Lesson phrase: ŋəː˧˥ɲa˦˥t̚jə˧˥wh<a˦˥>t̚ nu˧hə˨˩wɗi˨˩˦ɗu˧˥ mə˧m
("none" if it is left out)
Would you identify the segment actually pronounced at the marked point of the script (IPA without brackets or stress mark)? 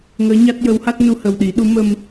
a˦˥